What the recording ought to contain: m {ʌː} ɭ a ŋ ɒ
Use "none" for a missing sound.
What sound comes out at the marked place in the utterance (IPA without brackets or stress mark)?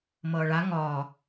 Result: ʌː